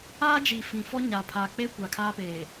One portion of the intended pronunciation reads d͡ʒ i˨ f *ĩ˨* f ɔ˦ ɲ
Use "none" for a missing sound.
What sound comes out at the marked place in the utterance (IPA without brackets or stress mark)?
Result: ĩ˨